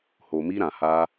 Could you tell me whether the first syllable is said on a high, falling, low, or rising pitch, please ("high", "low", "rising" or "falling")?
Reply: low